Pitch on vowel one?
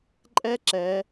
high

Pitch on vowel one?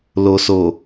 low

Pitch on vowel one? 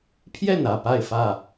falling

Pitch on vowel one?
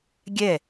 falling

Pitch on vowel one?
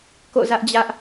falling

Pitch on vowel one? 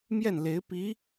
falling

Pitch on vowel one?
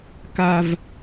low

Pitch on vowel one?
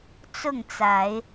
falling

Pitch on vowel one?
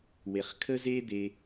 low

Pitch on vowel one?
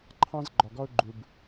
high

